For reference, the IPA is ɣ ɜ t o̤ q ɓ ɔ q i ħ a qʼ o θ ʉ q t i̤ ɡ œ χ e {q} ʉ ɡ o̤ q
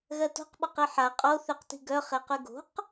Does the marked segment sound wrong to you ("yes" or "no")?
no